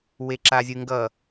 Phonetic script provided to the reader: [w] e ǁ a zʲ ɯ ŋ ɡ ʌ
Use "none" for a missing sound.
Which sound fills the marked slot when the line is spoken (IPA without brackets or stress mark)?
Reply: w